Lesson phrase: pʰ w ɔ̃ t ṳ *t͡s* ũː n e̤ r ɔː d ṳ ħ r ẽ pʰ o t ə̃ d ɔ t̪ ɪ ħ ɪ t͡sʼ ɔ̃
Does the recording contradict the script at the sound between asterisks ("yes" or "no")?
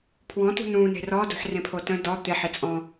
yes